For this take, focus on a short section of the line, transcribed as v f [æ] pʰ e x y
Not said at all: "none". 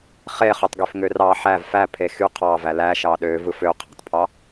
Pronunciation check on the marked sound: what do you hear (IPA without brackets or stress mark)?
æ